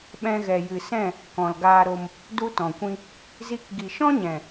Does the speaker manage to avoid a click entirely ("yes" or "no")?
yes